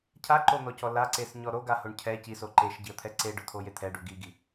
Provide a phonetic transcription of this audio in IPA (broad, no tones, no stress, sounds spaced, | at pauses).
cʰ a ǃ o n̪ ɔ c ɔ l a ǀ e s ɲ ɔ ɾ o ɡ a h o ɳ cʰ ɛ c i s o ǃ e ʃ ɟ i ə̯ t̪ʰ ɛ ǀ e ɖ ʊ t̪ʰ o j e t̪ʰ ɛ ɖ u ɡ i ɡ i